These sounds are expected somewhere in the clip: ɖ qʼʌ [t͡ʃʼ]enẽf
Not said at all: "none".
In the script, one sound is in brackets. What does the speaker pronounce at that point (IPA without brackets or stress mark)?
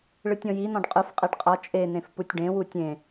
t͡ʃʼ